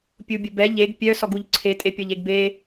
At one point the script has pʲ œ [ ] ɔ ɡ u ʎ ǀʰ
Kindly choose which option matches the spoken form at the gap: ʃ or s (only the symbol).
s